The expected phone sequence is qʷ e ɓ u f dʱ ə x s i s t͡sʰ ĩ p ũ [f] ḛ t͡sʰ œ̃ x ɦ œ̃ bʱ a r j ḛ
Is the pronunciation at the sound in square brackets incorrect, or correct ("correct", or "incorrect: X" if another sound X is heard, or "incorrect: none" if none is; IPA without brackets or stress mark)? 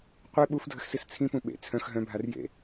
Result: incorrect: ɓ